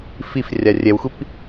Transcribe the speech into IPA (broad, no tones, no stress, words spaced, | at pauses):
fif rʲarʲɛwxʷip